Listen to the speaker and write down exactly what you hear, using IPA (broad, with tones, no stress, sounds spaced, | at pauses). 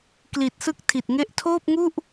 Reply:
k l i˨˩ t̚ s ɯ˥˩ k̚ tʰ i˨˩ t̚ ŋ e˥˩ ʔ tʰ oː˥˩ p̚ ŋ u˥˩ ʔ